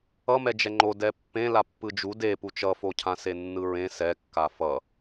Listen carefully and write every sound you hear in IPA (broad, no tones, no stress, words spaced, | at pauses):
ʌmɛd͡ʒɛ ŋ͡ǃo dɛpːẽ lapːɯd͡ʒu de put͡ʃʌfocʰã senːɯɹẽ sɛkːa fʌ